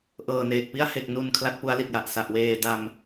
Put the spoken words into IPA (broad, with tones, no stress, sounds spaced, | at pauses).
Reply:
ʔ ɤː˨˩ n eː˨˩ k̚ p i˥˩ a̯ h e˨˩ k̚ n u˨˩ n kʰ l a˦˥ t̚ p u˦˥ a̯ l i˨˩ t̚ j a˨˩ ʔ s a˨˩ ʔ w eː˧ d a˧ m